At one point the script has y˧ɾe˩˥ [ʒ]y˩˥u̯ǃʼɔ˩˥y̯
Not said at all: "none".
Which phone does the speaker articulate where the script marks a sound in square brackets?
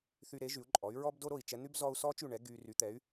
ʒ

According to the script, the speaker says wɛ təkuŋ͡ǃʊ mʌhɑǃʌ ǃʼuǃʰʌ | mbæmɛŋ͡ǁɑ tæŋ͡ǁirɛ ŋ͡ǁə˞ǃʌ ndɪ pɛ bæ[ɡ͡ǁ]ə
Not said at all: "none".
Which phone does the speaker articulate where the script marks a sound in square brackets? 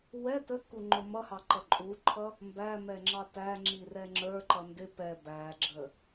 ɡ͡ǁ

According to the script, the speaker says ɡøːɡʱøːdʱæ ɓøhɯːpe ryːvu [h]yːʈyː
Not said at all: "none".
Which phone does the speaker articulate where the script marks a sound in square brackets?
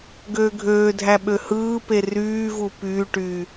p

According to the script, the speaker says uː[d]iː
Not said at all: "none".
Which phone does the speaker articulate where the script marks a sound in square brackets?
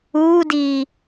d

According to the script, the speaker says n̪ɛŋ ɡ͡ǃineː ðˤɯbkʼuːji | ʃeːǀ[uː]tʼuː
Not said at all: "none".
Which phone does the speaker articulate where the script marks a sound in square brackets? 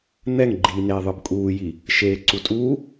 u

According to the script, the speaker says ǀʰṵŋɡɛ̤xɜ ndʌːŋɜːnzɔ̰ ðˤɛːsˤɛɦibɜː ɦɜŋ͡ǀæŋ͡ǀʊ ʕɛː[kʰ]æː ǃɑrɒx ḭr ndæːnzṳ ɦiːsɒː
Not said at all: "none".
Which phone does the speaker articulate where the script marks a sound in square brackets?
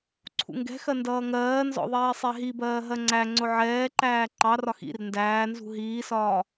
ǃ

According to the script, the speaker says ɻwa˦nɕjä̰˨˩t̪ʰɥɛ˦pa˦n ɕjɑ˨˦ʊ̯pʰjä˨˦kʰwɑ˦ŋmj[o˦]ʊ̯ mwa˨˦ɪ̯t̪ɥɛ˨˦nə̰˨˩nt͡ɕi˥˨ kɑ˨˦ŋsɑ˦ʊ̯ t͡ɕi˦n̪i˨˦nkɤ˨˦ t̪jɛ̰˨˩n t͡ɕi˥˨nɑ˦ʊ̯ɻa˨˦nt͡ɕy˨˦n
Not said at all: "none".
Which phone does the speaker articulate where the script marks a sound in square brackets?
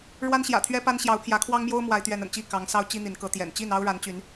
o˦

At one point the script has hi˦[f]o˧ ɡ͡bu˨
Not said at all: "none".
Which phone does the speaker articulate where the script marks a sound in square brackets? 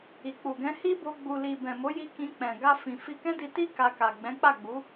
b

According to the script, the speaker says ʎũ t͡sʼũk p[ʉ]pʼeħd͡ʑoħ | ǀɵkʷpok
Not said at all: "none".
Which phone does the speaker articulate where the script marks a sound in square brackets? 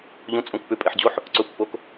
ʉ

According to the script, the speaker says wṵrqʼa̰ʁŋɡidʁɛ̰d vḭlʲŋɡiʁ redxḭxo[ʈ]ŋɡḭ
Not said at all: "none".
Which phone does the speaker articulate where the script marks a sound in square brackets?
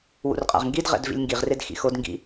d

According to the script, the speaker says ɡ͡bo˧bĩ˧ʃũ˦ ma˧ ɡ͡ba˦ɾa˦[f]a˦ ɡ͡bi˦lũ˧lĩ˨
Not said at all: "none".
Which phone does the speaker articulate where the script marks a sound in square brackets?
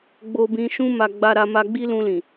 m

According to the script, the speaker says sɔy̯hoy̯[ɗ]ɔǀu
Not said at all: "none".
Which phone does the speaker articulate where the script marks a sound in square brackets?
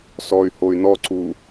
n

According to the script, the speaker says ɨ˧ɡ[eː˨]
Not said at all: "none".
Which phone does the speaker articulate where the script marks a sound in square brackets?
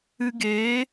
eː˨˦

